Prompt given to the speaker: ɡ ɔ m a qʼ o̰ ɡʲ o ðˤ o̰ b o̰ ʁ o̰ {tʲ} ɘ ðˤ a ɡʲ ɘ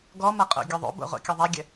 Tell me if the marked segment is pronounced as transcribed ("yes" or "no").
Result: no